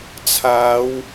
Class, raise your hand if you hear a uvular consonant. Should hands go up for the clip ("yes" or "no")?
no